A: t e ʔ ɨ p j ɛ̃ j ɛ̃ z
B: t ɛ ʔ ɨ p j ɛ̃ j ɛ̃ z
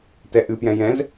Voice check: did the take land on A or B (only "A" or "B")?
B